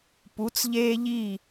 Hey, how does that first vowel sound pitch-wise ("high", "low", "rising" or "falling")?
rising